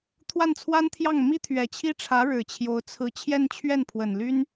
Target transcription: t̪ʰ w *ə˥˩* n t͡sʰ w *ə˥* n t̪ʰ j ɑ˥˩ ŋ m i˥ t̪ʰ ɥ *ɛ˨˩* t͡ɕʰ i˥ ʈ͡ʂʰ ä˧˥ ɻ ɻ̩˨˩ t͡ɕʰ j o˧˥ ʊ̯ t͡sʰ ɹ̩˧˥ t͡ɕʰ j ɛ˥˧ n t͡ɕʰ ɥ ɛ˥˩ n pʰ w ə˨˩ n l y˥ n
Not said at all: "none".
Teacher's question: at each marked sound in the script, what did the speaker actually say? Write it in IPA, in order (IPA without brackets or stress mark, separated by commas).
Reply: a˥˩, a˥, ɛ˨˩